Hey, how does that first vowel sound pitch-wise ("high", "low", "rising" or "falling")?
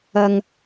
low